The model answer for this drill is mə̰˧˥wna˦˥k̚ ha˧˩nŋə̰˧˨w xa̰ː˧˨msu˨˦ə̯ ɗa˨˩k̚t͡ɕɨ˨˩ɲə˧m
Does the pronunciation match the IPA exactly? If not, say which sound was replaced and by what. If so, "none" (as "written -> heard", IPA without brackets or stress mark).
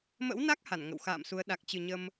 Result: none